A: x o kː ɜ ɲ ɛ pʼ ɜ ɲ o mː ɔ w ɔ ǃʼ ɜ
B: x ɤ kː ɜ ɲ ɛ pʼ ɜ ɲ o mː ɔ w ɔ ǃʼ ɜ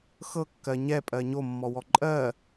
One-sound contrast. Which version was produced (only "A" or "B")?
B